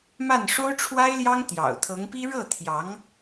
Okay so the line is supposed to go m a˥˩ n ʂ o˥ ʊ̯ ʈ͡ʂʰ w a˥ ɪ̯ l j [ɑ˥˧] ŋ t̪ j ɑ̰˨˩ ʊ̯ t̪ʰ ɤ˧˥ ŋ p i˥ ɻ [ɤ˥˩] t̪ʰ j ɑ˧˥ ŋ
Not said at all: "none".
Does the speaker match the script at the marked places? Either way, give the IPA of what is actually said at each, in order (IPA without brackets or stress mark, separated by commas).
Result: ɑ˥, ɤ˥˩